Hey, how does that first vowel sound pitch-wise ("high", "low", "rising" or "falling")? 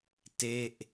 falling